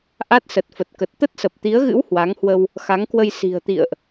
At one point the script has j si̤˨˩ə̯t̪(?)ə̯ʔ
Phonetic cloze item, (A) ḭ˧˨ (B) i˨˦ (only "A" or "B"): A